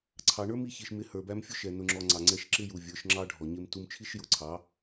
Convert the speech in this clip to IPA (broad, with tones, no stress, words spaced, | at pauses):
ǀʰɑ˨ ɳə˞˦mi˧çi˨ʃmɪ˨˦ hə˞˨bæ˧m fʲʊ˦ʃɛ˨ nʊ˨ŋ͡ǁɔ˨ ŋ͡ǀɑ˨ŋ͡ǀɛ˧ʃ ǁɪ˦ju˨ vʲə˞˨˦ʃŋ͡ǁɑ˦ɖʱɔ˨ ɲɪ˧m tu˧m t͡ʃʰi˦ʃ jʊ˨˦ǀʰɑ˨˦